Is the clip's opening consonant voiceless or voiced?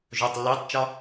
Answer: voiced